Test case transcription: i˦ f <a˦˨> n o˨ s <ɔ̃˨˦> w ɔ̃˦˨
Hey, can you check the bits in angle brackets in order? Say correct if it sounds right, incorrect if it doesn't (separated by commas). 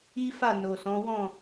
correct, correct